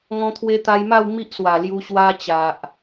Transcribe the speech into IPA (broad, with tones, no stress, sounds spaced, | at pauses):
ŋ ɔ̃˧ t̪ʰ w e˧ t̪ a˧ j m a˥˧ w m i˦ ʔ s w a˨˩ l j u˧ ɕ w a˧ t͡ɕ a˨ ʔ